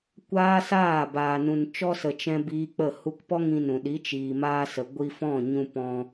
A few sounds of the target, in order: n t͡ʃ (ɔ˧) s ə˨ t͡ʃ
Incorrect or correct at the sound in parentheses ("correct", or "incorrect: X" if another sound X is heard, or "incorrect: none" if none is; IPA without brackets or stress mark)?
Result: correct